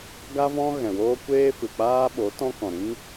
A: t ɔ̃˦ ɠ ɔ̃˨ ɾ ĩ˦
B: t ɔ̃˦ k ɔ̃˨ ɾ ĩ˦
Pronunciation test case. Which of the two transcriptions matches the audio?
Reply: B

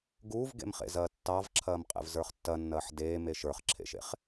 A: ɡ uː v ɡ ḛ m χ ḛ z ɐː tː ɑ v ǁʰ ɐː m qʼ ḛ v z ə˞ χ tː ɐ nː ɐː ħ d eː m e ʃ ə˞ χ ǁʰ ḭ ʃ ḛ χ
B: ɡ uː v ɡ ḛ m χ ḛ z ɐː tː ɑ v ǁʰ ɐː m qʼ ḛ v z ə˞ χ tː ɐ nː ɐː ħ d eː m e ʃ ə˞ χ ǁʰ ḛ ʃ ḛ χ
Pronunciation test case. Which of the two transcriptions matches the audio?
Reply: B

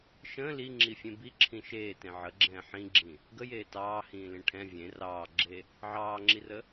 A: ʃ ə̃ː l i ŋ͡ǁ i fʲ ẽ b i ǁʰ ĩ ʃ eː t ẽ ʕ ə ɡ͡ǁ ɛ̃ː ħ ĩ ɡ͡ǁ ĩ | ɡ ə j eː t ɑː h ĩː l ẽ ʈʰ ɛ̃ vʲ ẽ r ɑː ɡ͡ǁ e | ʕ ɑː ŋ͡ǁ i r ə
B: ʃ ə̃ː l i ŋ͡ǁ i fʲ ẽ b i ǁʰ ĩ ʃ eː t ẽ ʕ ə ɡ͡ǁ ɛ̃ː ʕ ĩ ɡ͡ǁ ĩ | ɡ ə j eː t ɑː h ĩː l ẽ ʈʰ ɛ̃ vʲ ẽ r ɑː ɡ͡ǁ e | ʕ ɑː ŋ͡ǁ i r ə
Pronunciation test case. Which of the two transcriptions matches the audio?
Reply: A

